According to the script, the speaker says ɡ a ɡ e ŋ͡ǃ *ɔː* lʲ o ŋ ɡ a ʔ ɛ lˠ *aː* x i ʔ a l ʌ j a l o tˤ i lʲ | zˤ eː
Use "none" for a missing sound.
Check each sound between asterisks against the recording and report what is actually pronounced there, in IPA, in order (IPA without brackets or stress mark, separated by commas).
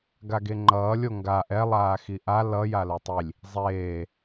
ʌː, aː